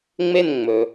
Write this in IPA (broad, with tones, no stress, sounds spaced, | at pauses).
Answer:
ŋ͡m e˥˨ n ŋ͡m ɵ˩